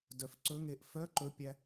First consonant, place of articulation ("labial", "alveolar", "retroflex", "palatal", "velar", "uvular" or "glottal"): alveolar